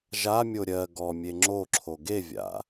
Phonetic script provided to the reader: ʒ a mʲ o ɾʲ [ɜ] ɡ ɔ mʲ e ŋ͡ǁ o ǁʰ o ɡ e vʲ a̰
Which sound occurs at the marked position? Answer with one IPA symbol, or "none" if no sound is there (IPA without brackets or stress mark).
ɜ